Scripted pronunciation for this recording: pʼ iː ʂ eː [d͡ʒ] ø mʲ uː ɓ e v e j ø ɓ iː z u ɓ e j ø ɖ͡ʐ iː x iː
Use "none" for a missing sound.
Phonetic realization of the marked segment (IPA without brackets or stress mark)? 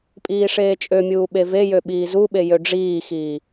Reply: t͡ʃʼ